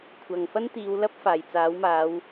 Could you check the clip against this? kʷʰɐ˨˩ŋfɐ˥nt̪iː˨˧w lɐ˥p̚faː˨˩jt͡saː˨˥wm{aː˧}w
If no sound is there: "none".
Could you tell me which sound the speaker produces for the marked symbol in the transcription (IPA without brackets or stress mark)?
aː˨˧